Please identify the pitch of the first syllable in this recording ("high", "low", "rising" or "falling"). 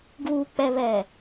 low